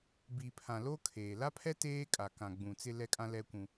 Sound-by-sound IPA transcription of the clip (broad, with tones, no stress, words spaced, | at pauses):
bi˨pʰã˨ lo˦ kʰeː˨ la˦pʰɛ˦ teː˦kʼa˨ kã˨ɡ͡bũ˨ t͡sɪ˦lɛ˦kʼã˦ lɛ˦kʷũ˦